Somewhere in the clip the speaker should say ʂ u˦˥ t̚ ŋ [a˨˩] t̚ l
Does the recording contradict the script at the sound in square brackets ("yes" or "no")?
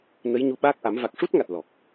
no